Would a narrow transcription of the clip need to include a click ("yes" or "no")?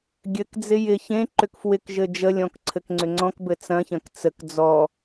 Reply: yes